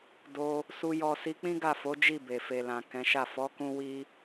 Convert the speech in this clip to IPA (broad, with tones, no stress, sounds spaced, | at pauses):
d o˦ | s u˧ j ɔ˧ s i˧ k͡p ĩ˦ ɡ a˦˨ f o˨˦ d͡ʒ i˦˨ b e˨ f e˨ l ã˨ k ɛ̃˨˦ ʃ a˦˨ f ɔ˨˦ k ũ˦ w i˦